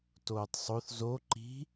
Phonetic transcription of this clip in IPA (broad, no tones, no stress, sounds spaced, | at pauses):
t oː tˤ sˤ o θ z o ǃ i̤